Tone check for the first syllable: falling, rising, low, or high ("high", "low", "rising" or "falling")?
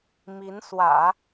rising